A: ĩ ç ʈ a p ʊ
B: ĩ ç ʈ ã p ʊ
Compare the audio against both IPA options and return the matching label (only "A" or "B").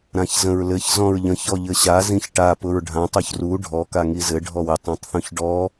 A